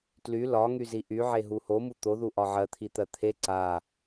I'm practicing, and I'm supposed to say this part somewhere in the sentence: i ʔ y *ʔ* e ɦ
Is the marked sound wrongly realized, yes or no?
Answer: yes